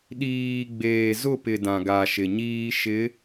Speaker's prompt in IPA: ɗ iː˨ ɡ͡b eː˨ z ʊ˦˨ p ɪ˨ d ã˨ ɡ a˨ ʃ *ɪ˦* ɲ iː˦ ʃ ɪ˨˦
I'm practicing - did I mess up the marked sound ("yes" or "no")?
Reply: yes